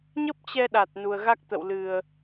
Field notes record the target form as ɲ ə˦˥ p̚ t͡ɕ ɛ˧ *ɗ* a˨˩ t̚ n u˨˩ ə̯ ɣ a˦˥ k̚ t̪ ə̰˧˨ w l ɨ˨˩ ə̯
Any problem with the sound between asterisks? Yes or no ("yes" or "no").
no